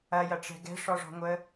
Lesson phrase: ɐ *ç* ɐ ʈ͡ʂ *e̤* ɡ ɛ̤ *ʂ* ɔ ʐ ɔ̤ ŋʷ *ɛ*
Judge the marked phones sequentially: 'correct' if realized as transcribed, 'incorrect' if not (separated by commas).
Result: incorrect, incorrect, correct, incorrect